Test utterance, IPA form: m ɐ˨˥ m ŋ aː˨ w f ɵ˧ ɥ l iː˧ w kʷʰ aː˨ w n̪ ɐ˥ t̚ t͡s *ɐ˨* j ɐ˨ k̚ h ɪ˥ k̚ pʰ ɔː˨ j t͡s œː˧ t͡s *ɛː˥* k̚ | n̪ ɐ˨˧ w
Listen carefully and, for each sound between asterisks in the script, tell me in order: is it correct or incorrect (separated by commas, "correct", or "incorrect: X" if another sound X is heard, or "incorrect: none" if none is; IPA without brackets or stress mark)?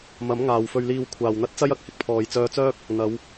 incorrect: ɐ˥, incorrect: œː˥